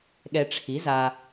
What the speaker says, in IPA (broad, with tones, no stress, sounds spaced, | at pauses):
ɠ ɛ˨ ʈ͡ʂʰ i˩˥ z a˨